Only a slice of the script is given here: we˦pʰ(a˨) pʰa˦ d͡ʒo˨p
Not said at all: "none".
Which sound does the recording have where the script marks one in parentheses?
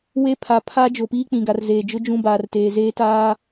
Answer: a˨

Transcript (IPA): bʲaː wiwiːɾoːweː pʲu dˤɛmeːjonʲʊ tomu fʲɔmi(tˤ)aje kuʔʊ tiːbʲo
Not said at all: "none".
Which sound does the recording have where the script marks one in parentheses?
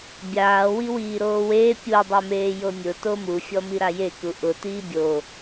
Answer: ɾ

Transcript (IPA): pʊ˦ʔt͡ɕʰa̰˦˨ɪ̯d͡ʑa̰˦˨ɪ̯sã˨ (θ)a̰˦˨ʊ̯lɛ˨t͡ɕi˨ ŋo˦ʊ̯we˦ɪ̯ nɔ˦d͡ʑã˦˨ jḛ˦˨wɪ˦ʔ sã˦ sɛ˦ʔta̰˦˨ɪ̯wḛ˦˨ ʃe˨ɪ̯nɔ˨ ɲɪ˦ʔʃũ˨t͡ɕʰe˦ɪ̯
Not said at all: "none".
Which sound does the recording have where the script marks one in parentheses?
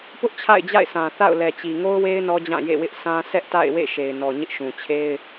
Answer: θ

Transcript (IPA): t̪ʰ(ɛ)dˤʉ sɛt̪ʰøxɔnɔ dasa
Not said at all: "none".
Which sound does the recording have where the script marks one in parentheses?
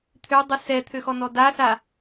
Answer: ø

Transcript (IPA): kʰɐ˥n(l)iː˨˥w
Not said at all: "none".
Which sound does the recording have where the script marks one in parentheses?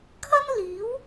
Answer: l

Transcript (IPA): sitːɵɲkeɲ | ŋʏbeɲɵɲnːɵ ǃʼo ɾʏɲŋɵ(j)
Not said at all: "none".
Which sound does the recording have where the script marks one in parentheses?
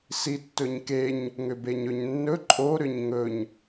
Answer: ɲ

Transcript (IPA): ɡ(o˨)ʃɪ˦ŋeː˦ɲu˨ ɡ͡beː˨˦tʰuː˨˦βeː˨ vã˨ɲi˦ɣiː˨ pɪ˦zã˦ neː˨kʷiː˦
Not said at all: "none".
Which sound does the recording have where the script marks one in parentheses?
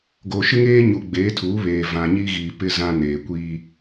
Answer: o˨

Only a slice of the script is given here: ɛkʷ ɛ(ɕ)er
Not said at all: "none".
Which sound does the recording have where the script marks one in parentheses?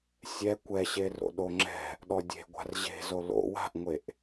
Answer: ɕ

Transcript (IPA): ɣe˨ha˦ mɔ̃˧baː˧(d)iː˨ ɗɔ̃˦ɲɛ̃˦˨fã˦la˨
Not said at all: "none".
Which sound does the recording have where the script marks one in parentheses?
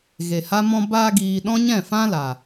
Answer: ɡ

